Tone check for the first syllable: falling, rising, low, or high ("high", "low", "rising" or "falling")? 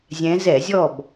rising